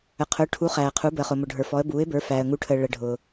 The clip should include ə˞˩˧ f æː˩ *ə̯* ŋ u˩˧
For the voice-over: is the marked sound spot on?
yes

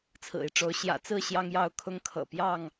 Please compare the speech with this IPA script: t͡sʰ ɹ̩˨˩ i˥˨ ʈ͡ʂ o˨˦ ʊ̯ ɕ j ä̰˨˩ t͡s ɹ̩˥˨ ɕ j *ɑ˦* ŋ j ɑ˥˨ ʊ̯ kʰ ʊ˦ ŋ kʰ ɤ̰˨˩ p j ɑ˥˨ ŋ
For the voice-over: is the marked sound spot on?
yes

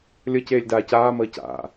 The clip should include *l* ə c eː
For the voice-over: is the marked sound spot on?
no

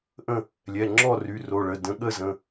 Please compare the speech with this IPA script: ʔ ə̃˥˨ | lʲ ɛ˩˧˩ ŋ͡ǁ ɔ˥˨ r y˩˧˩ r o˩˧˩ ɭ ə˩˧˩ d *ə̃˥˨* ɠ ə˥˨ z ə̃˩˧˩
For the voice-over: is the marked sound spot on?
no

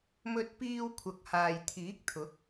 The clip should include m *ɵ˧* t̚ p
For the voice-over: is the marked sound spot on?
yes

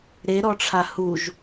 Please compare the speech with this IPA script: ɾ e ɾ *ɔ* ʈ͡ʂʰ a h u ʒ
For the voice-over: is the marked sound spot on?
yes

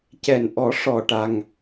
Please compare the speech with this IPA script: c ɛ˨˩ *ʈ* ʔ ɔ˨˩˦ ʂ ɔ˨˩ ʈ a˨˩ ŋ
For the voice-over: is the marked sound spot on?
no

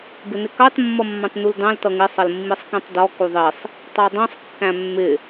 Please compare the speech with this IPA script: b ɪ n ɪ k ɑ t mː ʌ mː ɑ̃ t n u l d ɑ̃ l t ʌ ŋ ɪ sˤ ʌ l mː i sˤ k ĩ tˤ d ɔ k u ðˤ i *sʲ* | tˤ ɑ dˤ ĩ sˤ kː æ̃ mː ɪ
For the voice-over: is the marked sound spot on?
no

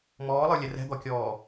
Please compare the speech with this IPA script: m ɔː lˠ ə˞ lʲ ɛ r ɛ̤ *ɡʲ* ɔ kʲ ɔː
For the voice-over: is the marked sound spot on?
no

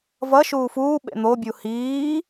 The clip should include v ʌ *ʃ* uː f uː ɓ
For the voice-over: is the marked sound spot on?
yes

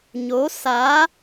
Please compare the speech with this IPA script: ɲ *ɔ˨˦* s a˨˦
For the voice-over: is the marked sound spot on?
no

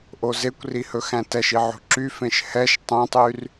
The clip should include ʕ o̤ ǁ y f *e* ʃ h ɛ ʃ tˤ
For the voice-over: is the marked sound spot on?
no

